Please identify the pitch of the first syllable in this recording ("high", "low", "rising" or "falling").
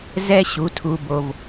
high